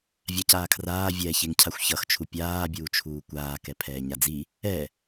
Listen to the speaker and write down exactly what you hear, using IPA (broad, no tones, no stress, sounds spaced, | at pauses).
vʲ a c aː kʰ r aː vʲ ɛː ç e ŋ cʰ a xʷ ç ʌ x t͡ʃʰ u pʲ aː bʲ uː t͡ʃʰ uː kʷ aː k ɛ pʰ ɛː ɲ a d͡z i | ɛ